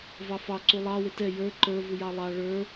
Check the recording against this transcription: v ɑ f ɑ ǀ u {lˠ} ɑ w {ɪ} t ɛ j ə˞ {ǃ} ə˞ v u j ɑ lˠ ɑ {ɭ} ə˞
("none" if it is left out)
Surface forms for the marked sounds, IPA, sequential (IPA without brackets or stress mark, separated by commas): lˠ, ɪ, ǃ, ɭ